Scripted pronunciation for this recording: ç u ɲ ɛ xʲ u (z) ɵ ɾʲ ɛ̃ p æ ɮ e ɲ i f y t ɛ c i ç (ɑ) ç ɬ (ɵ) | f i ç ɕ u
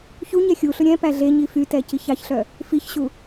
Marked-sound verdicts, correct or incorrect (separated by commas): incorrect, correct, incorrect